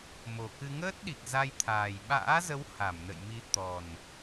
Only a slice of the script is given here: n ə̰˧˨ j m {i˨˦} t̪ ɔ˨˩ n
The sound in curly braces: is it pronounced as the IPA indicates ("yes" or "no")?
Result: yes